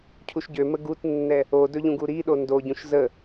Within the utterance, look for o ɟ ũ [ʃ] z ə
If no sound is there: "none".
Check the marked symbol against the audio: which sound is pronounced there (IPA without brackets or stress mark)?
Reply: ʃ